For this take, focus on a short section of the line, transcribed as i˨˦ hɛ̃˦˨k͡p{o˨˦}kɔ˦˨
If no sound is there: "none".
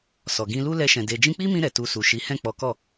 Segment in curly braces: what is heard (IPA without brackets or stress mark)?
ɔ˨˦